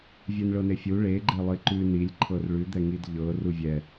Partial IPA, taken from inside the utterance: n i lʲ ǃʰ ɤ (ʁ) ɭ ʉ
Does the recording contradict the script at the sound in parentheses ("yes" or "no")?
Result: yes